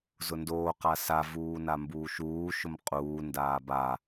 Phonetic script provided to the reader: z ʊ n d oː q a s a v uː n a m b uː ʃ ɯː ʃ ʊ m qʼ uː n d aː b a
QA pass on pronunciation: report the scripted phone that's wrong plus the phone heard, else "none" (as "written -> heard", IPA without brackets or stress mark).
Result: ɯː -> uː